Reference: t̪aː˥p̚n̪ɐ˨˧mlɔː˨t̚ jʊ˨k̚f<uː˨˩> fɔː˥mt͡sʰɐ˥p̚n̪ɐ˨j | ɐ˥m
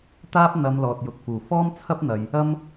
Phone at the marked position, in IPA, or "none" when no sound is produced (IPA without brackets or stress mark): uː˨˩